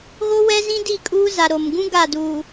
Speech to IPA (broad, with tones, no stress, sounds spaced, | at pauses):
ɣ o˦ w ɛ˦ z ĩ˦ d i˦˨ kʼ uː˦ z a˨ ɾ o˨ m ɡ ũ˦ ɡ a˦˨ d uː˨